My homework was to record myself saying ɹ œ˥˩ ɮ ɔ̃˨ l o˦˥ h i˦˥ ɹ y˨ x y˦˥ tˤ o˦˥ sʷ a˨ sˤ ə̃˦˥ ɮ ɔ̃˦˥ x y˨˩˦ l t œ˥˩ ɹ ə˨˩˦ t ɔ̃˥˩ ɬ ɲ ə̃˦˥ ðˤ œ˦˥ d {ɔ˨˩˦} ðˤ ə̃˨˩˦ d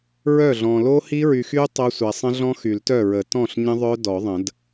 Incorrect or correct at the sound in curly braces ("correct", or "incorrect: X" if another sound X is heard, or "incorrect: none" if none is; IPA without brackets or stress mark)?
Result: correct